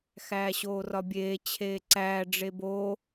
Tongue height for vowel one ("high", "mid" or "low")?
low